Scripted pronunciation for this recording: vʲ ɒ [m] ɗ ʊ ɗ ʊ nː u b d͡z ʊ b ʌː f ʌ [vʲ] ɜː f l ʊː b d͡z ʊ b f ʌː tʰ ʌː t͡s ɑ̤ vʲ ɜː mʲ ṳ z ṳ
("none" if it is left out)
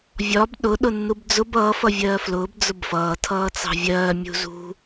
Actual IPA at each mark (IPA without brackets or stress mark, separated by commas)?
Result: b, vʲ